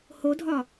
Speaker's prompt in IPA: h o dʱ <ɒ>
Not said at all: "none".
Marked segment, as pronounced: ɒ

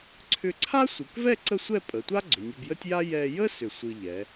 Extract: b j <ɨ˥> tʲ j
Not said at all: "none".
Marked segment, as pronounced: ə˥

